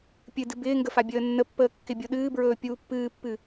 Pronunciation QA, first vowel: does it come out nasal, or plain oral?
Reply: oral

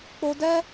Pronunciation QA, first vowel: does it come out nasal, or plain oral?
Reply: oral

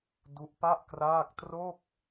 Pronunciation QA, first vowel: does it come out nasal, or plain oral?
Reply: oral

